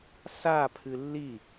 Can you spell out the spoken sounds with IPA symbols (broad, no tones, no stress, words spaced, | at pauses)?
sa pʰɨlːi